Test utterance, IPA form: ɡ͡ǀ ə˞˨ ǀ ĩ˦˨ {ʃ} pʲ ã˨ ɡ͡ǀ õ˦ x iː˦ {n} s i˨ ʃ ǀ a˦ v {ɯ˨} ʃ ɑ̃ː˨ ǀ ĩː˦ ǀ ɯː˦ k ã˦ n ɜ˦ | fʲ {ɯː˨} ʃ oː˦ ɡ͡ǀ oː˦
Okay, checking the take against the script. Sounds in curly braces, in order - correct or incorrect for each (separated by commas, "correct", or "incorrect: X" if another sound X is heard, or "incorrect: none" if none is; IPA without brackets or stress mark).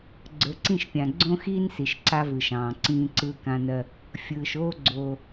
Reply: correct, correct, correct, correct